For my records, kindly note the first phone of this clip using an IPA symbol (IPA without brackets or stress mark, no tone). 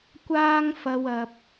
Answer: kʷ